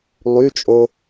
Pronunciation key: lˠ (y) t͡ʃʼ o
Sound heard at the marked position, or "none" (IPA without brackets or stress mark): y